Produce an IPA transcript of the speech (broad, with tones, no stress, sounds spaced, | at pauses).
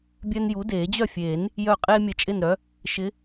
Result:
bʲ œ˦ n j u˨˥ d eː˨˩˦ d͡ʑ œ˥˨ fʲ eː˨˩˦ n | j œ˧˩ qʼ eː˦ mʲ ə˧˩ t͡ʃʼ ɪ˥˨ n ɾ œ˨˥ | ʃ ɪ˨˥